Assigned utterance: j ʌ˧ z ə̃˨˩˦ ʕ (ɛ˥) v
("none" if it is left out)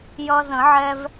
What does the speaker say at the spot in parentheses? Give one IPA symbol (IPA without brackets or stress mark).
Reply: ɛ˧